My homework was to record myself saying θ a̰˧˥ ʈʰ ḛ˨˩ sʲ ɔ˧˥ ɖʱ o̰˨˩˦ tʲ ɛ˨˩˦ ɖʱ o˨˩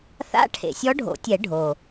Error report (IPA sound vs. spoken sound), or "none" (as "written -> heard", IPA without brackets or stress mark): none